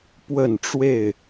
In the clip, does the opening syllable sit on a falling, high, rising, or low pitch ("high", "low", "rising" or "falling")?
falling